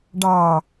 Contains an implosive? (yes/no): no